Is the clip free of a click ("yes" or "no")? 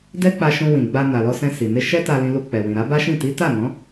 yes